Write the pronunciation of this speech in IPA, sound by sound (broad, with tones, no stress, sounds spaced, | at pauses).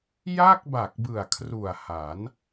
j a˥˩ k̚ b a˨˩ k̚ b ɯ˨˩ a̯ kʰ r u˨˩ a̯ h a˩˦ n